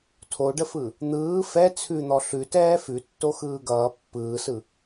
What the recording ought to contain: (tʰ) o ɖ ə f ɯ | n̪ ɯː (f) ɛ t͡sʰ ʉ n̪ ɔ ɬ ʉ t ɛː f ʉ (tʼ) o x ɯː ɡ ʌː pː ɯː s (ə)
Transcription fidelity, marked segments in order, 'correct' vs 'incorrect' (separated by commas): correct, correct, incorrect, incorrect